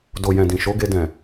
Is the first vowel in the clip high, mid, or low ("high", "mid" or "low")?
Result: mid